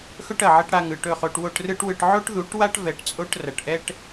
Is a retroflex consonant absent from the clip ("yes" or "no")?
no